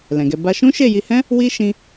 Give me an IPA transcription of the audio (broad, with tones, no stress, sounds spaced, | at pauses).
l ɛ̃˨ ɡ ɛ˧ b a˦ ʃ ũ˦ ʃ e˦˨ j i˧ h ɛ̃˦ | w i˦ ʃ ĩ˧